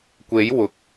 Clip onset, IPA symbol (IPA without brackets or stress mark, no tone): kʷ